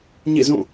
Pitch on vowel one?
falling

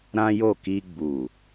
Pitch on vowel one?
high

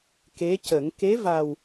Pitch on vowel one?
rising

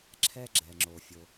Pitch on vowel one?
high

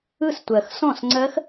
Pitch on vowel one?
falling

